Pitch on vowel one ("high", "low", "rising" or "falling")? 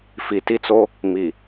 low